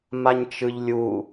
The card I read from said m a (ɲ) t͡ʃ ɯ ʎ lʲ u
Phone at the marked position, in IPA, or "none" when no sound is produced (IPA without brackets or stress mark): ɲ